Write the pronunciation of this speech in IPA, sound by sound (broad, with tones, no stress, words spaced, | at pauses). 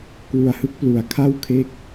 kwu˧a̯hɯ˦˥k̚ plu˧a̯kʰa˥˩wkʰe˥˩k̚